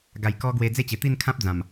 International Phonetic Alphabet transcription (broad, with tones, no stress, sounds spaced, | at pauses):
ɡ a˨˩ j k ɔ˧ ɡ w e˧ d͡z e˥˧ t͡ɕ e˨˩ t̪ i˥˧ n kʰ ã˦ p̚ d͡z ã˨˩ m